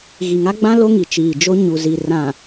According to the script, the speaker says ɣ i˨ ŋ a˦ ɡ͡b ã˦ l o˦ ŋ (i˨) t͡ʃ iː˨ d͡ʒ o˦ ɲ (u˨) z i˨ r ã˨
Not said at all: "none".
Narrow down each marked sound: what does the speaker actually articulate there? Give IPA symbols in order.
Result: i˨, u˨

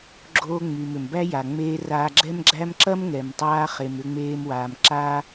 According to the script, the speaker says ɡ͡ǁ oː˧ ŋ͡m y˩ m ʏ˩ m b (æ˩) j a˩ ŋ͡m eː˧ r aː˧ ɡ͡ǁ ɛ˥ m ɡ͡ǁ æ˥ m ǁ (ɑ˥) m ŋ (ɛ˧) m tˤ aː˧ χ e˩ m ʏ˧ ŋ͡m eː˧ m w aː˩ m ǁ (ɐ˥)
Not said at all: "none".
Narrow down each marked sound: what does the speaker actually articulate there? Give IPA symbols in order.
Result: æ˥, ɐ˥, ɛ˩, a˥

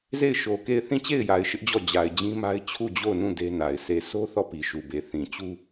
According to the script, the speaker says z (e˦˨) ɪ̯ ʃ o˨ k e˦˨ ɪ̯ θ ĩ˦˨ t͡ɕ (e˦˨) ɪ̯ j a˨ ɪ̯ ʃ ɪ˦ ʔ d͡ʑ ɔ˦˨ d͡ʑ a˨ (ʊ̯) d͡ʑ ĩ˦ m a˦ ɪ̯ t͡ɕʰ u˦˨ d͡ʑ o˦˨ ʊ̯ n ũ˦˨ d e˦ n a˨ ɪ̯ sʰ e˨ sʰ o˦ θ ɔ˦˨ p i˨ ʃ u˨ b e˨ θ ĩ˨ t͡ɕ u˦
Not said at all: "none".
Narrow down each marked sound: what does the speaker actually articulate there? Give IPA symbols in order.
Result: e˦˨, e˦˨, ɪ̯

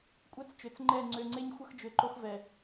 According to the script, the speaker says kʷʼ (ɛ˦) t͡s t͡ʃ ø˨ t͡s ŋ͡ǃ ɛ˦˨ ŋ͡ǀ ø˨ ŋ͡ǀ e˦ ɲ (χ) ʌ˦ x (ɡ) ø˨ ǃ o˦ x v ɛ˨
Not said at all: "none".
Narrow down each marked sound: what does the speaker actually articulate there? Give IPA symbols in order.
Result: ɛ˦, xʷ, d͡ʒ

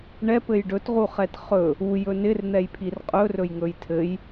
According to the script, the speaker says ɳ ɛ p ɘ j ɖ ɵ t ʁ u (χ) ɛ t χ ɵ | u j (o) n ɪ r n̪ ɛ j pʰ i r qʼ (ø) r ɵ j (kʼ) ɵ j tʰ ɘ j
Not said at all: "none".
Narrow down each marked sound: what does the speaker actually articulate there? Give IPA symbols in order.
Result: χ, ɵ, ɵ, ŋ

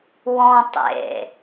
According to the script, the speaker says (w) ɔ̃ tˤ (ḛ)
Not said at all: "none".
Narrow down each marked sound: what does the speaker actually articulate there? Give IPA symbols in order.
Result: w, ḛ

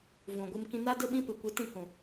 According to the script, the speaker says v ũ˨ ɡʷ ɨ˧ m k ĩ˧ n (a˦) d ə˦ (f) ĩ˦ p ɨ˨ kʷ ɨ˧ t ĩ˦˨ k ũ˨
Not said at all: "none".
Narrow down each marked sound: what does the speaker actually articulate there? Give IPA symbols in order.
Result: a˦, ɓ

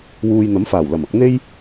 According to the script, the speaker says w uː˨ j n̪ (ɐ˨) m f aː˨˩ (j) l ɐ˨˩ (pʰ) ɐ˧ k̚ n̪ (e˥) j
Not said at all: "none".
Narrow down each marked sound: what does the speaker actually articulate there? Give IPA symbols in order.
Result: ɐ˨˥, w, m, e˥

